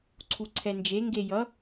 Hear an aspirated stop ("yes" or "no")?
yes